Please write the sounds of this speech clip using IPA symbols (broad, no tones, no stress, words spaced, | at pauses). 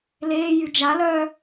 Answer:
leːjy d͡ʒa lœ